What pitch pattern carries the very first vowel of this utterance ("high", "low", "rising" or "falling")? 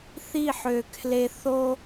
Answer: falling